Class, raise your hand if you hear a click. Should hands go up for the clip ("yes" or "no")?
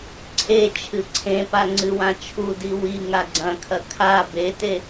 yes